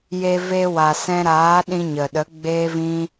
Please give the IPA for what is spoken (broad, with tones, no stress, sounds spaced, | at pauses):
j e˧ v e˧ w a˨ s ɛ̃˧ ɾ aː˨˦ ɗ ĩ˧ ɲ ə˨ ɗ ə˨˦ ɡ͡b eː˦ v ĩ˦